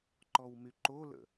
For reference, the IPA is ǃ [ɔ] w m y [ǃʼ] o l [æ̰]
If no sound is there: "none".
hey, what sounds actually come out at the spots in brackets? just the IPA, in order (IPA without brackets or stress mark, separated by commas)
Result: ɔ, ǃ, ə̰